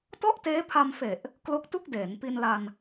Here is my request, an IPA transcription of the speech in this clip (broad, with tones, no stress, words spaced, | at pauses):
tɔ˥˩ʔteː˦˥pʰa˧mfe˨˩ʔ | klo˦˥k̚tu˥˩k̚deː˩˦n pi˧nla˧n